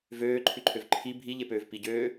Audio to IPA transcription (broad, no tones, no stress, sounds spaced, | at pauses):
v øː ǃʰ ʉ ǃʰ ø v ǃʰ i bʱ i ʎ e p øː v p i ɟ øː